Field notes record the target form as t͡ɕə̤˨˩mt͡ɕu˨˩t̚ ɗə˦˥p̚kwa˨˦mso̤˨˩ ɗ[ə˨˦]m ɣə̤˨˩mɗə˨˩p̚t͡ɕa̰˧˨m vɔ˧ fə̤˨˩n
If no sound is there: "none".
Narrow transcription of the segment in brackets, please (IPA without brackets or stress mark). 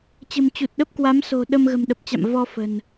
ə˧